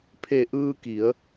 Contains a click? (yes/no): no